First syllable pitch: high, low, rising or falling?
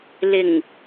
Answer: low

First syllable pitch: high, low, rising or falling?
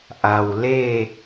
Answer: low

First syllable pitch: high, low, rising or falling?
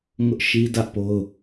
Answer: high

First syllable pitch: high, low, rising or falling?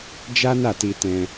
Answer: high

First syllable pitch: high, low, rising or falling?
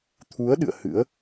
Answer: rising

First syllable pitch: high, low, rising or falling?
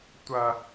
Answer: high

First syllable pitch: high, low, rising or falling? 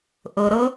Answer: low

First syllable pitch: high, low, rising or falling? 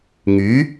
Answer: rising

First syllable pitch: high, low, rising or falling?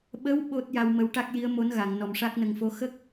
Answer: rising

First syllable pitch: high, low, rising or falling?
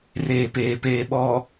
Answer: low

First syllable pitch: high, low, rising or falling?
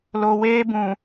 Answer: low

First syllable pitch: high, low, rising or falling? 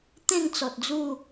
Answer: falling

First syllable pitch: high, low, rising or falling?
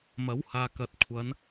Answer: rising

